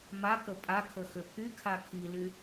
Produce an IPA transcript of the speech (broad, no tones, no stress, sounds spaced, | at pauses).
m a k ə pʼ a kʰ ə x ø pʰ y kʰ a kʰ i l y